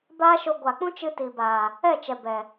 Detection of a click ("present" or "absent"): absent